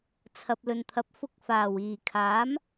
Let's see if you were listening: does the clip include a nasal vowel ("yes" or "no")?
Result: no